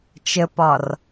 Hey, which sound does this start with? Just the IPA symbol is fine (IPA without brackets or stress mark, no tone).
t͡ʃ